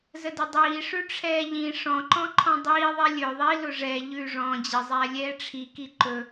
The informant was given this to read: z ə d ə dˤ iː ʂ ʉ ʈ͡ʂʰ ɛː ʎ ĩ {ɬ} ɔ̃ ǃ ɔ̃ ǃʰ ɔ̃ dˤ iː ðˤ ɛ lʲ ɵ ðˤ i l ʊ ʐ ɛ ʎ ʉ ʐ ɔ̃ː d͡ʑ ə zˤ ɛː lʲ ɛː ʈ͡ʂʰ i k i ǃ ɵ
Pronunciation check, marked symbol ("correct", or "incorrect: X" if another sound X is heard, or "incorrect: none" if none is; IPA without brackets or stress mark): incorrect: ʂ